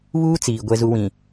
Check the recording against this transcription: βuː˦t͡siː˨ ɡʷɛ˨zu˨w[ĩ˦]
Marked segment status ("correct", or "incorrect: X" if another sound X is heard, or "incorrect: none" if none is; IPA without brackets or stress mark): incorrect: ĩ˨